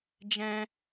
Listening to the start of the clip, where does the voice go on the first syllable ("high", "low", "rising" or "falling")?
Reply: high